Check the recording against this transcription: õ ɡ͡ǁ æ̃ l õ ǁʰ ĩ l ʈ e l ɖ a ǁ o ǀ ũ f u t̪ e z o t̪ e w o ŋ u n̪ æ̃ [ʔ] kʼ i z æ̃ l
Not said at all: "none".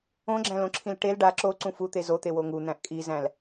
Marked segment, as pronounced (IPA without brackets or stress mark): ʔ